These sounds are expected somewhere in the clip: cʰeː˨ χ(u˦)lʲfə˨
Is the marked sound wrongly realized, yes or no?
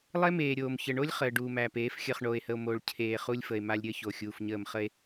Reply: no